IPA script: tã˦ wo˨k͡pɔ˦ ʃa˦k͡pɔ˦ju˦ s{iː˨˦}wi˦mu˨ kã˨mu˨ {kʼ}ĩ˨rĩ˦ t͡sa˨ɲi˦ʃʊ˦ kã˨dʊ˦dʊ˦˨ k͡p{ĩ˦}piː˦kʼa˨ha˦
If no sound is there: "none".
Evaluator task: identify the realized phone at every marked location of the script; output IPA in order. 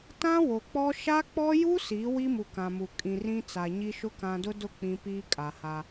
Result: iː˨˦, kʼ, ĩ˦

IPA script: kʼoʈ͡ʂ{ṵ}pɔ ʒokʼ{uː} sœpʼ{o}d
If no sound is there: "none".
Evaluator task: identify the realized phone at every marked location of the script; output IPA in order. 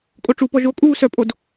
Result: u, uː, o

